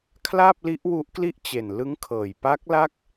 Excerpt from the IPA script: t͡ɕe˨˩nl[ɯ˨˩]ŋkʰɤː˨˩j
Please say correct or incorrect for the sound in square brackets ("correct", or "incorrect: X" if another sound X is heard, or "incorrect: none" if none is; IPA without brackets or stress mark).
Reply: incorrect: ɯ˦˥